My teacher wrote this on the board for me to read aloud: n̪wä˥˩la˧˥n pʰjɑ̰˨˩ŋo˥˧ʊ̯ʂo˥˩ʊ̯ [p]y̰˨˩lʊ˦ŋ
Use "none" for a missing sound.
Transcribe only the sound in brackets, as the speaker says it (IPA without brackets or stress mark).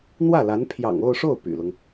p